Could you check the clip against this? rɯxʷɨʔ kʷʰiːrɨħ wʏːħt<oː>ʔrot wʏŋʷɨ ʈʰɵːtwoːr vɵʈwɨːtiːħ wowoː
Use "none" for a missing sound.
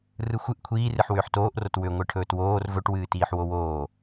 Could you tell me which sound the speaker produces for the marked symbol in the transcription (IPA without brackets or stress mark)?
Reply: oː